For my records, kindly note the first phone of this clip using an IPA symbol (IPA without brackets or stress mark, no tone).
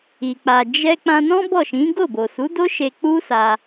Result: i